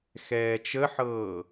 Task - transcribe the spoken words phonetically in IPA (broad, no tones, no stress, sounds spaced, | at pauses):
x ɛː t͡ʃ ə ħ ɤː